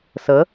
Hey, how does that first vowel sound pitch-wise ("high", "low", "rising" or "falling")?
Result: rising